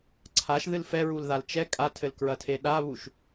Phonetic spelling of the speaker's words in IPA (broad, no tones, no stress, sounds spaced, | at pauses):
ǀʰ a ʃ ð ɨ l f ɛ ɹ u l ð a l t͡ʃ ɛ kʼ a tʰ ɘ l k ɹ ɐ tʰ e ɗ a β u ʃ